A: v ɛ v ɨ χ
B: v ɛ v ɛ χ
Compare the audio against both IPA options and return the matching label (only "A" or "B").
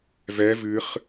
A